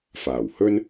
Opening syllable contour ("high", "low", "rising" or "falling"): low